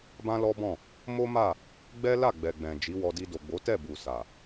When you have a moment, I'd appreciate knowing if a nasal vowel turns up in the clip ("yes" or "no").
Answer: yes